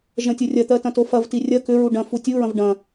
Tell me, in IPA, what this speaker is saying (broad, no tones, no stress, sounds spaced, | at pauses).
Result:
ʒ ɐ̃ tʲ o rʲ ɐ t̪ ɜ t ɐ̃ t o f ɐ v t i rʲ ɐ k ʏ ɹ u ɖ ɐ̃ f u tʲ u ɹ ɐ̃ v ɖ ɐ̃